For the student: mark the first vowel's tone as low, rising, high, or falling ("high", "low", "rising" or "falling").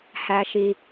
low